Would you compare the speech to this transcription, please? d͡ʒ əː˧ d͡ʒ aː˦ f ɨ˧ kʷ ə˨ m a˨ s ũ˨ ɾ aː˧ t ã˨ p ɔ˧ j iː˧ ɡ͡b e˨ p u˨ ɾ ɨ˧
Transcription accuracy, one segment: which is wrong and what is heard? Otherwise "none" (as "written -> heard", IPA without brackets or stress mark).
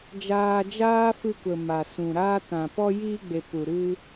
əː˧ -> aː˧